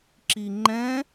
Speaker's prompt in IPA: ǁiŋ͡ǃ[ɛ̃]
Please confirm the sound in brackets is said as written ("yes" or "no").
yes